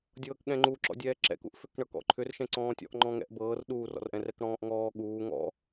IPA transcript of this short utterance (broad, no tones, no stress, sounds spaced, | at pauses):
dʲ ɤː k ɠ ɛ̃ ŋ͡ǃ u ǁ ɔ̰ dʲ ɛː ǁ ɛ̰ k ṵ ʔ f ʏ k ɳ ɤ k ɔ̰ ǃʰ ʏ r ʃ ɛ̃ ǀ ɔ̃ː tʲ ɔ̰ ʔ ŋ͡ǃ ɔ̃ ŋ ɛ̰ ʔ b ɤː r ɗ uː r ɔ̰ r ʔ ɛ̃ r ɛ k ɽ ɔ̃ː ʔ ŋ ɔː ɠ uː ŋ ɔ̰